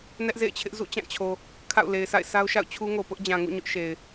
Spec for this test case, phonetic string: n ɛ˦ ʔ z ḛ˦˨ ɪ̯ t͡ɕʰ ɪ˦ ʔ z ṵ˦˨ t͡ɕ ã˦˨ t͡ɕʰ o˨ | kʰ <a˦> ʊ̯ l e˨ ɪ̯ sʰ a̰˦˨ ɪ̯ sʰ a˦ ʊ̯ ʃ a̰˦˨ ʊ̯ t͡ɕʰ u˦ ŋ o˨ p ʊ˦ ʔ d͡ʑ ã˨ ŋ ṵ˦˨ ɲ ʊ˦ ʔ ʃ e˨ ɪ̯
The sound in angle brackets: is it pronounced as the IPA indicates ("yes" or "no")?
no